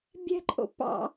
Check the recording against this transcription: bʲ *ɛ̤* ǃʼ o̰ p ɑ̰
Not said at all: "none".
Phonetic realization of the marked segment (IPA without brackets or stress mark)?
ɛ̤